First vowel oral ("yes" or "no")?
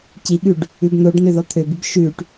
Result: yes